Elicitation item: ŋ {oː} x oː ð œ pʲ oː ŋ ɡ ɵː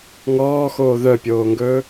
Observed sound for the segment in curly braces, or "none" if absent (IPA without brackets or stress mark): ɔː